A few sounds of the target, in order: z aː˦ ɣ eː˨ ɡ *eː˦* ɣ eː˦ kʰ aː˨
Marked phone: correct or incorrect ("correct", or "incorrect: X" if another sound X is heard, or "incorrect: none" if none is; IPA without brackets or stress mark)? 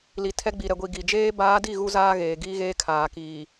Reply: incorrect: iː˦